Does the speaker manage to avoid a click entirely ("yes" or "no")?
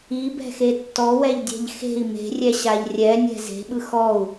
yes